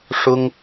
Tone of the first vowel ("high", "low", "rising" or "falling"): high